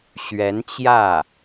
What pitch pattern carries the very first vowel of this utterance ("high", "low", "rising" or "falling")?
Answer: rising